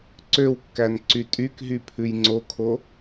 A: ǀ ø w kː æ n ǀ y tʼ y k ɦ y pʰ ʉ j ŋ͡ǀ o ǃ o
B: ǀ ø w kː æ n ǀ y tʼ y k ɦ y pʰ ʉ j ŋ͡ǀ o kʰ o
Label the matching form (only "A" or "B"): B